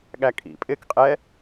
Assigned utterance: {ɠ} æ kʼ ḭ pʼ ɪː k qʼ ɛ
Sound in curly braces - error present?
no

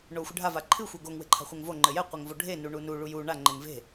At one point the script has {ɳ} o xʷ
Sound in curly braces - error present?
no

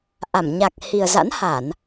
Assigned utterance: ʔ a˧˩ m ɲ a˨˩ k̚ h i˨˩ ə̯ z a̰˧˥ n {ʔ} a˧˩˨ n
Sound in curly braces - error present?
yes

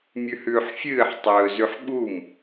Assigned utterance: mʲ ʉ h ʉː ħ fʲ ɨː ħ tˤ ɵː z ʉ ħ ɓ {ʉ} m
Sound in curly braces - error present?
yes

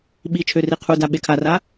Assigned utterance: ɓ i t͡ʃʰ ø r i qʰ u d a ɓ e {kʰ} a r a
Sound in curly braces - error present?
no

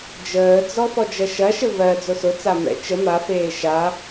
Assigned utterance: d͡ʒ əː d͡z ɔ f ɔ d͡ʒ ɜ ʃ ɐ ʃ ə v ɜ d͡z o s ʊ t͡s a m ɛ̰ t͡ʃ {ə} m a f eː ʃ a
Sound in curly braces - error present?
no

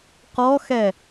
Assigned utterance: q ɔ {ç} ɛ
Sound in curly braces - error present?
yes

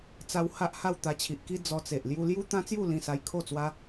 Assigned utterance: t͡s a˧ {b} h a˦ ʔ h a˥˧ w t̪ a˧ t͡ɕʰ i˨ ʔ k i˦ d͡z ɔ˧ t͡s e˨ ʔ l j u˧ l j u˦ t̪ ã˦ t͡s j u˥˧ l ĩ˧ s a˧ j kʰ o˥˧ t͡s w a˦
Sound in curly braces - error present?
yes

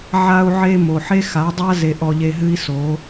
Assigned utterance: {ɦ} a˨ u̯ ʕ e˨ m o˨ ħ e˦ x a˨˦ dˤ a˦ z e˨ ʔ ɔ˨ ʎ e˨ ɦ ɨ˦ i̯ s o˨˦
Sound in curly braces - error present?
yes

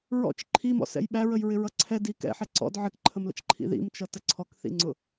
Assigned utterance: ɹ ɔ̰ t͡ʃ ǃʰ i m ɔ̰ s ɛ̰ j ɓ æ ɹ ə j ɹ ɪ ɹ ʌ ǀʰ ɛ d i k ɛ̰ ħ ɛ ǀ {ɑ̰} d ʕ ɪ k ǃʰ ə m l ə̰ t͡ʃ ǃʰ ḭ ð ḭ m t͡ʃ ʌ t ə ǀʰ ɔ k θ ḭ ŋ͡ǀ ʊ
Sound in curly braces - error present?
yes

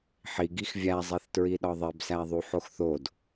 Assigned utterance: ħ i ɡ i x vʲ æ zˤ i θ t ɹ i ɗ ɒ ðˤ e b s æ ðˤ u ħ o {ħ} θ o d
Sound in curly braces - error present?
yes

